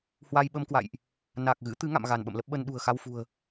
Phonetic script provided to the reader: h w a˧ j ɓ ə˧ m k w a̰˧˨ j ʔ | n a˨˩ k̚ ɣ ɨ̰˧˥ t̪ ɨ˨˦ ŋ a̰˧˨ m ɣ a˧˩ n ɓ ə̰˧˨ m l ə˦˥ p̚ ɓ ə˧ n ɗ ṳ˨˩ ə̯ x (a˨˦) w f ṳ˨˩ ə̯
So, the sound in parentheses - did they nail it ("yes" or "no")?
no